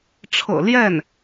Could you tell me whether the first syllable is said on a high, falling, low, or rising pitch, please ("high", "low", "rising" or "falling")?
low